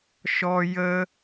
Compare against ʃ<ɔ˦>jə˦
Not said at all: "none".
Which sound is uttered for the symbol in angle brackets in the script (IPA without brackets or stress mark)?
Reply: ɔ˦